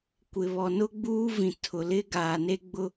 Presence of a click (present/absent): absent